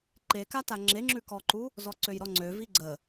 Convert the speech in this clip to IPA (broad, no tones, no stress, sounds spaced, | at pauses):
ǃ e k a t a ŋ͡ǁ e ŋ͡ǁ ʉ k ɔ ǃ u | z ɔ ǀ ø j ɾ ɔ ŋ͡ǀ ø v i ɡ͡ǀ ə